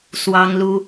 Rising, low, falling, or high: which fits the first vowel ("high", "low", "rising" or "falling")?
high